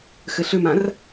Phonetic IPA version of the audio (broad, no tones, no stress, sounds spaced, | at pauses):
x ɘ ɬ ʏ m ã r